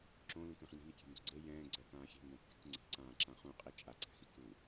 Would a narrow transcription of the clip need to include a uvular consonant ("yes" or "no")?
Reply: yes